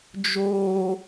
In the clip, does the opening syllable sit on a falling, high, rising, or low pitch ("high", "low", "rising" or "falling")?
high